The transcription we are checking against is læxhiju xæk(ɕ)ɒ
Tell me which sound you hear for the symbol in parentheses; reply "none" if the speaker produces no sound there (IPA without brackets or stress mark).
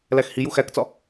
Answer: t͡s